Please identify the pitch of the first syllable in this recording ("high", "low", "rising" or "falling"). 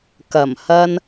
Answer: low